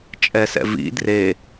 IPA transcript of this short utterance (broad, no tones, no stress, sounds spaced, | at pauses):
t͡ʃʼ ɛ s ɛ̰ v ḭ d r e